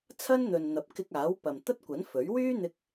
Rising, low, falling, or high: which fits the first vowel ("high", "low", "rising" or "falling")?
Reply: high